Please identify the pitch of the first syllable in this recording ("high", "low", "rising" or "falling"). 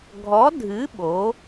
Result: rising